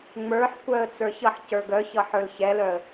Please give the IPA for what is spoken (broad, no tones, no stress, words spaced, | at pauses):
ŋ͡mə˞ħkʷœə̯ t͡sə˞çʌħcə˞ ɡœçʌ ħə˞lçɛlœə̯